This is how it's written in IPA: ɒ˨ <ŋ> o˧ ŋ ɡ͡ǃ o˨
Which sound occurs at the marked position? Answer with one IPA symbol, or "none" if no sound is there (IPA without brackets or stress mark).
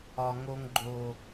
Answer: ŋ